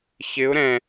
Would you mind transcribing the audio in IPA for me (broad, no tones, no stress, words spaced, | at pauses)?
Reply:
çɪʊ̯ ɾɛ̃